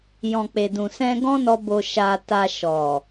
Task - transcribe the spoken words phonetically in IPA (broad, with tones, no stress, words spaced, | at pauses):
jɔ̃˨k͡pe˨dũ˨ sɛ̃˧ɡɔ̃˦nɔ˧ bo˧ʃa˧ta˧ ʃɔ˨